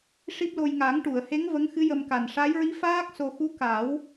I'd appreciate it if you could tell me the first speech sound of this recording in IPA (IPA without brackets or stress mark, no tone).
ʂ